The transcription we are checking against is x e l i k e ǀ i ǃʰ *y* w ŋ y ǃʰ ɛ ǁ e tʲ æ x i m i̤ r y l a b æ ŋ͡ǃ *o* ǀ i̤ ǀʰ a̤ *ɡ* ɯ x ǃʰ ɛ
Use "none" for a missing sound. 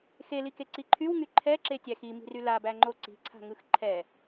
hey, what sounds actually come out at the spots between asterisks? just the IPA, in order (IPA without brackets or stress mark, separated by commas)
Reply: y, o, ŋ